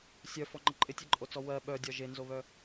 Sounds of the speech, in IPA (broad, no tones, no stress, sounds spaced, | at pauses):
sʲ œ f ɔ ŋ͡ǃ ɪ ǃʼ ɪ tʲ ɛ ǃʼ o t͡s ɔ w ɜ ɓ œ dʲ ɒ ʒ e n z o β œ